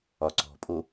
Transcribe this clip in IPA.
ɒ ǀ ɔ̤ pʼ o

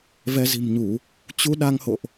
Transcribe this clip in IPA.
v ɛ˧ z i̤˨˩ m ɲ u˧˩˨ | t͡ɕ u˧ ɗ a˧ ŋ h o̰˧˨ ʔ

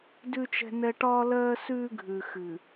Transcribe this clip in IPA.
d ʉ˦ t͡ʃ ɛ̤˦ n ɛ˦ ʈ ɒː˦ l ɜː˦ s ʉː˦ ɡʱ ʉ˨ x ɨ˨

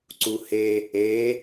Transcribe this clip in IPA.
ǀ u h e | e

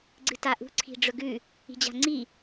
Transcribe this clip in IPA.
ɡ͡ǀ ɨ t a ʔ ṳ ǀʰ i̤ ɖ͡ʐ ɵ ɡ ʉ | i̤ d͡ʑ a̤ ŋ͡ǀ i

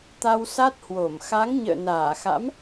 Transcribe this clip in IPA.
t̪ a˧ w s a˦˥ t̚ h w o˧˩ m x a˨˦ ŋ ɲ ə̰ː˧˨ n aː˧˩ x a̰˧˥ m

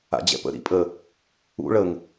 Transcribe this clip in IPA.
a̰ d͡ʑ ɛ̰ p ə̰ ɾ ḭ pʼ ə | ṵ ɭ ə ŋ

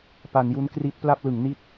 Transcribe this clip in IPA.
p a˩˦ n j u˦˥ n k r i˦˥ t̚ p l a˥˩ p̚ l ɯ˩˦ ŋ n i˦˥ t̚

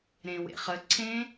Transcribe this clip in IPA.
ɾ ẽ w ḛ χ ə ǀʰ ẽ

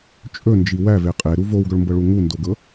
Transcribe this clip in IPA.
t͡ʃʼ ɵ n d͡ʒ i w æ v e qʼ e ɾ u v o w ɡ ɵ ɭ m b ɤ ɭ u ŋ u n d o ɡ ɤ

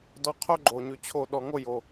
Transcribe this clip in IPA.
d ɔ˧ qʰ o˦ ɡ͡ǃ o˨ ɲ ʉ˨ t͡ɕʰ o˦˨ ɗ ɔ˨ ŋ o˦˨ j o˨

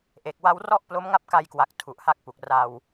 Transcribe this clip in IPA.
ʔ e˨˩ k̚ w a˦˥ w r ɔ˥˩ ʔ p l o˦˥ m ŋ a˥˩ p̚ k a˧ j k w a˨˩ k̚ tʰ u˨˩ ʔ h a˦˥ k̚ p u˨˩ k̚ r a˧ w

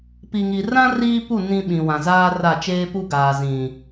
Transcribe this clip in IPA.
p i˨ ŋ i˨ r ã˦ r iː˦ p u˦˨ n ĩ˦ ɓ ĩ˨ w ã˨ z aː˦ r a˦˨ t͡ʃ eː˦ p u˦ ɡ aː˨ z ĩ˨

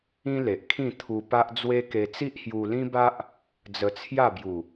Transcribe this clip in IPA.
ĩ˦ l e˨ ʔ kʰ ĩ˥˧ t̪ʰ u˧ p a˦ ʔ d͡z w e˦ k e˧ t͡s i˦ ʔ h j u˧ l ĩ˦ b a˦ ʔ | d͡z ə˧ t͡sʰ j a˥˧ b j u˨˩

